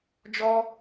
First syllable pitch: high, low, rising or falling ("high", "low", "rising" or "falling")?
high